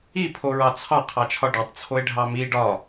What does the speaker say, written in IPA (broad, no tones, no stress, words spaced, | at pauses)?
ipʰo ɹɑt͡sʰɑ qʰɑt͡ʃʰɒɖotˤt͡sʰoɪ̯ ɖʱɑmi ɖɒ